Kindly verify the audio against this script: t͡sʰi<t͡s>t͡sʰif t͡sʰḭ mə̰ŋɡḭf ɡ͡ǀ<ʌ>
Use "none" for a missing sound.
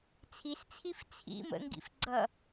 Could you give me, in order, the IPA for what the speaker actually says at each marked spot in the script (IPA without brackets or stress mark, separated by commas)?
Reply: s, ʌ